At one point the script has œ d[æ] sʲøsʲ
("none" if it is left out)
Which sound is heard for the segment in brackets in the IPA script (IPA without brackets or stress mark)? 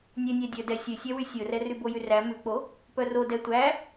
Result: ɛ